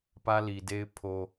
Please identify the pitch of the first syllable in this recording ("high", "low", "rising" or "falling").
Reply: high